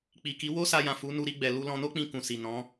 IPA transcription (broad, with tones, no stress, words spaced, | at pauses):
k͡pi˨ki˨˦ wo˦ sa˧jã˨fu˨˦ nu˧ɾi˧ɡ͡bɛ˨ lu˧lɔ̃˧no˦k͡pĩ˧ kũ˨si˨ nɔ̃˨˦